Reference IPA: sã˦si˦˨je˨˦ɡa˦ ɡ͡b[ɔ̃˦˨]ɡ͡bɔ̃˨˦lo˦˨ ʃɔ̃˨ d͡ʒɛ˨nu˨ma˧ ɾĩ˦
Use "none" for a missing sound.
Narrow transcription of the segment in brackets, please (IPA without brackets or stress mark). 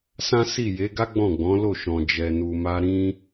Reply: ɔ̃˦˨